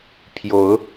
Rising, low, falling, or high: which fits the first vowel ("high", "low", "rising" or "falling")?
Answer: rising